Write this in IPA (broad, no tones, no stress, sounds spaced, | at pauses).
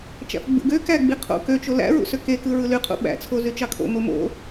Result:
t͡ʃ æ̰ f ɡ͡b ṵ ɡ ø k æ ɡ͡b i qʰ o̰ k ø t͡ʃ o l æ̰ ɹ ṵ s ø k e k ɯ ɹ ɯ l y qʰ ṵ ɓ æ̰ t͡sʰ o z y t͡ʃ ɑ kʰ o̰ m o m o̰